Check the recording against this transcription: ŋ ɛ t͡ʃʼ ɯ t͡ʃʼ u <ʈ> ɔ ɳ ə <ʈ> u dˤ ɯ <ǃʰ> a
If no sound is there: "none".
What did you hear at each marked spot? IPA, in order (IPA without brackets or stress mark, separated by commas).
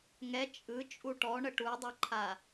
ʈ, ʈ, ǃʰ